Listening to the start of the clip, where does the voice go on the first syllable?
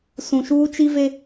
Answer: low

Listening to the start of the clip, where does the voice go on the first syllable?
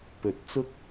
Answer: low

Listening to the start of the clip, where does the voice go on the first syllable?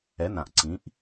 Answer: rising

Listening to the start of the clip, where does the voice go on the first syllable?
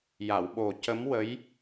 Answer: low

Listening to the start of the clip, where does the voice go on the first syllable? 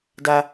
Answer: high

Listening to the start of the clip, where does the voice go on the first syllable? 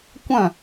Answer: falling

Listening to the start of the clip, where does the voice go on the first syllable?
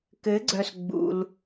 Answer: rising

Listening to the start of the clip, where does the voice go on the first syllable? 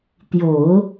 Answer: low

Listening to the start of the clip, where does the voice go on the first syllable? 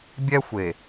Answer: high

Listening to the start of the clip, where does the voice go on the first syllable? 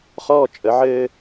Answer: falling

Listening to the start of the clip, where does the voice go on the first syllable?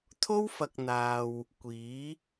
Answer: high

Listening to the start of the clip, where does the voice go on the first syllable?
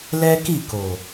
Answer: high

